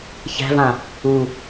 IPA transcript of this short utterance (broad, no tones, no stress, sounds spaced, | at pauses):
ç æ̤ v ã | u